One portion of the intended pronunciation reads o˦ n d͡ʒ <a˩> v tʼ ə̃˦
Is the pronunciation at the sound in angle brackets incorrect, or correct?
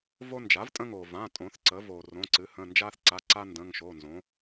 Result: incorrect